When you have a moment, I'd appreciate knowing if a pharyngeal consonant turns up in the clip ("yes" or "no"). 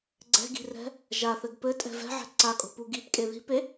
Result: yes